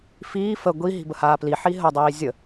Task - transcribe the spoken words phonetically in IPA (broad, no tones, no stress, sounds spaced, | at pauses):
f iː f ə ɡʷ i ɦ i̤ b ə h aː p l i ħ i ɦ ə dˤ iː zʲ ə